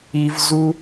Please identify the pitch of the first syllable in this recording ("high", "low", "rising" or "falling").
high